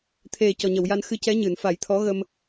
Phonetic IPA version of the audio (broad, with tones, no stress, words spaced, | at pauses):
t̪ʰe˨˩ cɔ˨˩ɲə˨˩˨wja˧nxɨ˧ cɛ˧˥ɲɨ˨˩˨nfa˨˩˦j t̪ʰɔ˧˥ɣə˧m